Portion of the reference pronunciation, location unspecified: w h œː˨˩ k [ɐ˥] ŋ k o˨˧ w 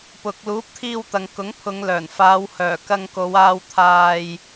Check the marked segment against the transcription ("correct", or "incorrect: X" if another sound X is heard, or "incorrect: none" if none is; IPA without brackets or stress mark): incorrect: ɐ˧